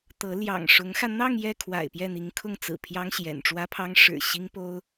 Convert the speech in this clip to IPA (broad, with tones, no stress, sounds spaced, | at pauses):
t̪ ɤ˧˥ l j ɑ̰˨˩ ŋ ʂ ʊ˧˥ ŋ x ä˧ n̪ ɑ˥˧ ŋ j ɛ˥˩ kʰ w a̰˨˩ ɪ̯ p j ɛ˥˩ n̪ i˧˥ ŋ kʰ ʊ˥˩ ŋ t͡s ɹ̩˨˩ pʰ j ɑ˥ ŋ ɕ j ɛ̰˨˩ n ʈ͡ʂ w ä˥ pʰ ɑ˥ ŋ ʂ ɻ̩˨˩ ɕ i˥ ŋ p o˥ ʊ̯